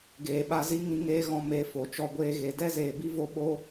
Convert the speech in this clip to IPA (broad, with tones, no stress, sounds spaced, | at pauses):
ɡ eː˨ ɓ a˧ z i˦ ŋ ĩ˧ ŋ eː˦ ɣ ɔ̃˧ m e˨˦ f o˨ t͡ʃ ɔ˧ ɡʷ eː˧ ɣ e˨ d ɛ˦ z eː˨ b i˦ v o˧ ɓ o˦